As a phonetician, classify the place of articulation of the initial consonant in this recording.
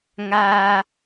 velar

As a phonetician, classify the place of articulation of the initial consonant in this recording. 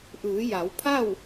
glottal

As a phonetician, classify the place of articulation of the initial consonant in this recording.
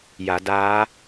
palatal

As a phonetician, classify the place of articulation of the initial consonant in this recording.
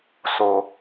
alveolar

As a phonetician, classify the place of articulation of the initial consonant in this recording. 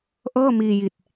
glottal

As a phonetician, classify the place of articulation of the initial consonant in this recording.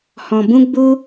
glottal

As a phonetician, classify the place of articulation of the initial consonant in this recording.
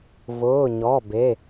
labial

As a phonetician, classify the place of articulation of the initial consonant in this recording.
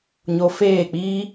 palatal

